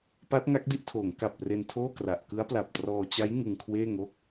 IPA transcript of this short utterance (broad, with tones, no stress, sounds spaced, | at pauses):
p a˦˥ t̚ ŋ a˦˥ k̚ d i˥˩ ʔ tʰ oː˩˦ ŋ k a˨˩ p̚ r e˧ n tʰ oː˥˩ k r a˨˩ ʔ k ɯ˦˥ a̯ p l a˨˩ p̚ t r ɔː˧ t͡ɕ a˦˥ j ŋ ɯ˧ ŋ kʰ w eː˥˩ ŋ o˥˩ k̚